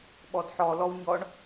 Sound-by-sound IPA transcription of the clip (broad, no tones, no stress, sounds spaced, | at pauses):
ɓ ɔ d ħ ɔ l ɔ w ɲ ɔ ɳ